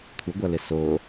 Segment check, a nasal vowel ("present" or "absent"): absent